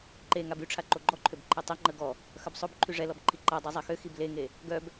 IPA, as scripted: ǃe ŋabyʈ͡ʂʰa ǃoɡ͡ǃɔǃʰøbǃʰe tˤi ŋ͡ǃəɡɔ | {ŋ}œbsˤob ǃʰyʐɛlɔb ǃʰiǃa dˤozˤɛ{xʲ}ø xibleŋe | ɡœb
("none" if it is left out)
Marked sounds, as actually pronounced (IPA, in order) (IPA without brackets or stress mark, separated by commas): x, x